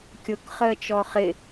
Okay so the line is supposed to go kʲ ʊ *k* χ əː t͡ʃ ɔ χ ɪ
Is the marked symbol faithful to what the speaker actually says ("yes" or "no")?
yes